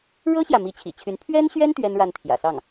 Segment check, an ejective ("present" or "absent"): absent